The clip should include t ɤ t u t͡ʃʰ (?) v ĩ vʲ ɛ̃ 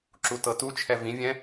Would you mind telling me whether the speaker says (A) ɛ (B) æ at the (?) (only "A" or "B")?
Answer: A